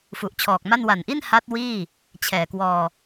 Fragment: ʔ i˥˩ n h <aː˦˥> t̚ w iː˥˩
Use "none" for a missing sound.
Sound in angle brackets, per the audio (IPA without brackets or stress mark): a˦˥